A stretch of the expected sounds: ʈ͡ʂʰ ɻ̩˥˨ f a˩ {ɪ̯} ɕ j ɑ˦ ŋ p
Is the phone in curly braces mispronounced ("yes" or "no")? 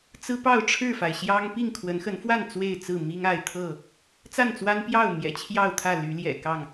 no